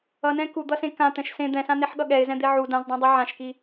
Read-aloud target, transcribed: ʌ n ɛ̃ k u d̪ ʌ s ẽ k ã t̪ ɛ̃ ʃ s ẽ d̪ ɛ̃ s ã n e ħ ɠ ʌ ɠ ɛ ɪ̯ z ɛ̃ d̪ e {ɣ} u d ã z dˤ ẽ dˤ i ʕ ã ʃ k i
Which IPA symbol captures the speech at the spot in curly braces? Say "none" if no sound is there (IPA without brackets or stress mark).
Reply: ʕ